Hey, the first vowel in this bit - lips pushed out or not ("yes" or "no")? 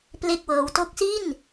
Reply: no